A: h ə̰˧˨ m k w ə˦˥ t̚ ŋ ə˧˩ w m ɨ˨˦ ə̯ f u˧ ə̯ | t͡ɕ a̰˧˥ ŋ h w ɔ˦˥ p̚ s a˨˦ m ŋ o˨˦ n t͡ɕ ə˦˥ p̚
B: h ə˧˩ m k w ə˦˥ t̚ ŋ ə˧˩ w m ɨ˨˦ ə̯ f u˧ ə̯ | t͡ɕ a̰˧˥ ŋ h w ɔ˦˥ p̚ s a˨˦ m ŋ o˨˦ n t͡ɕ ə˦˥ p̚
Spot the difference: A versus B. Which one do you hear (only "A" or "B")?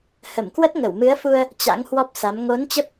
B